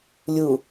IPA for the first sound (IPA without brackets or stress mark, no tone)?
lʲ